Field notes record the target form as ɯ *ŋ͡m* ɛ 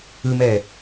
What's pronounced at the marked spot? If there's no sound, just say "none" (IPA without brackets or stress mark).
m